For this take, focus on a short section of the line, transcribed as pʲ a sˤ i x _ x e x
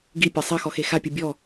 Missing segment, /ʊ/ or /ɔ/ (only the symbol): ɔ